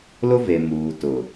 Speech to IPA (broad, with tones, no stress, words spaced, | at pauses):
lʊ˦ve˨muː˨ tʊ˨